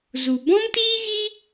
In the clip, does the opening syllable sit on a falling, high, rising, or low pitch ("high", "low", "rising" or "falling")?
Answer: low